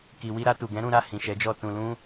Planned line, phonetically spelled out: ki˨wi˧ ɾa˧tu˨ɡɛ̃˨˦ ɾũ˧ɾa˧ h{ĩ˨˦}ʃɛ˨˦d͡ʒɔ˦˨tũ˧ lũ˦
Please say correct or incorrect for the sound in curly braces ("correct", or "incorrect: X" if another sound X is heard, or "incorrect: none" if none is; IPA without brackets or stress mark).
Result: incorrect: ĩ˨